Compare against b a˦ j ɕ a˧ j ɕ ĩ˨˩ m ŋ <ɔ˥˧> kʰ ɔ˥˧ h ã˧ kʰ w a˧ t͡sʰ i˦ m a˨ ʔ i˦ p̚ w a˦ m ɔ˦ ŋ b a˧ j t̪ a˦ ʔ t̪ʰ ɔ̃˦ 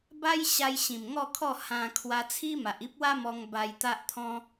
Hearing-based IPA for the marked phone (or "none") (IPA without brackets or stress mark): ɔ˥˧